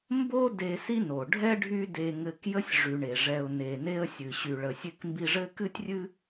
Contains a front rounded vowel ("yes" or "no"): yes